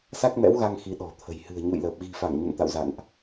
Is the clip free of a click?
yes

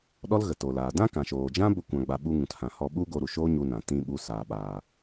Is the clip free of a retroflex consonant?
yes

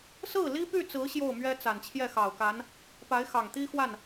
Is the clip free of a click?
yes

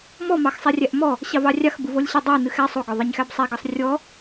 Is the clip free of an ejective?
yes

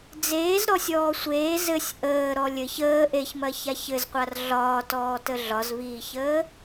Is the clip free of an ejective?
yes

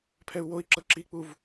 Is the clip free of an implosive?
yes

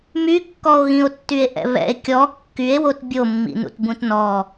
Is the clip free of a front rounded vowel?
no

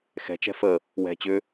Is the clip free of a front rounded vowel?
no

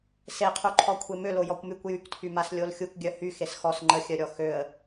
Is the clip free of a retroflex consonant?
yes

